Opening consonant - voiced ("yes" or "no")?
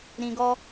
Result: yes